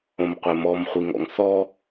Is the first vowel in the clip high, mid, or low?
mid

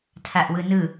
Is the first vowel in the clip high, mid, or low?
low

